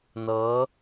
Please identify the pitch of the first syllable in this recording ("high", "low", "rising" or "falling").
rising